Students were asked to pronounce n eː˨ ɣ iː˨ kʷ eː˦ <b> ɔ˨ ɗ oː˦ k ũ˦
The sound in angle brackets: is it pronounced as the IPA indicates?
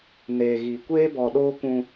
yes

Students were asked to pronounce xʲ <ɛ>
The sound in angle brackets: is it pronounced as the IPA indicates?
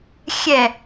yes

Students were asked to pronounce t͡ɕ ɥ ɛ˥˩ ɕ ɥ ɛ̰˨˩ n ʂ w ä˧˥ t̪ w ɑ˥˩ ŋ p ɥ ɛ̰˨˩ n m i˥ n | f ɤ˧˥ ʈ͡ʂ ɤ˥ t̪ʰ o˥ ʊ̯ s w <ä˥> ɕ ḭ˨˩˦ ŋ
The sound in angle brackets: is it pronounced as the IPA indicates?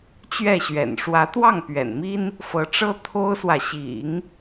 no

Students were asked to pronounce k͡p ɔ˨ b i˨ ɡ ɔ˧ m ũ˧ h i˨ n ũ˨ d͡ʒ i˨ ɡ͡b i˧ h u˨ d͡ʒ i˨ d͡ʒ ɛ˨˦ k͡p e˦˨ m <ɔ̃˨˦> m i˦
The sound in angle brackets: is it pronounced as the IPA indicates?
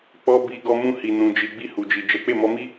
no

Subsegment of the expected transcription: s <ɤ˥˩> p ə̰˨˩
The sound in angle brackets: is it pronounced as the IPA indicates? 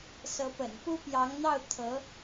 no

